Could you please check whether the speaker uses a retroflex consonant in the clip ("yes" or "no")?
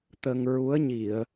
no